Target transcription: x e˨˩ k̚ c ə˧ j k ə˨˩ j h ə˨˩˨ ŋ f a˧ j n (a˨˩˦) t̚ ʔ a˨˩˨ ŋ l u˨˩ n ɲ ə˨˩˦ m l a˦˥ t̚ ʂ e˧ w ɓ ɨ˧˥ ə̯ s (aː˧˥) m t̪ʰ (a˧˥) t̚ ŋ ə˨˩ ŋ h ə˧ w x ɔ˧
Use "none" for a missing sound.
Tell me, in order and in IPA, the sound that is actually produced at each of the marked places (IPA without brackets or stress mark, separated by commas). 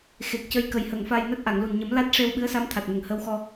a˦˥, a˧˥, a˨˩